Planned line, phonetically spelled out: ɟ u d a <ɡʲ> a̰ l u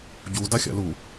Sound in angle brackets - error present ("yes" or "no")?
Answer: yes